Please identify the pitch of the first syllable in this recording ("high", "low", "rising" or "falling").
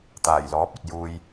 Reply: low